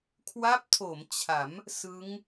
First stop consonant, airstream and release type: aspirated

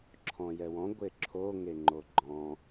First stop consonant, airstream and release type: click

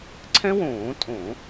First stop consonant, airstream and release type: click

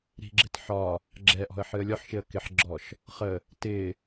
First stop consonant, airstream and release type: click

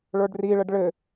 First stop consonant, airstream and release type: plain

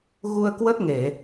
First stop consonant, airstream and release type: plain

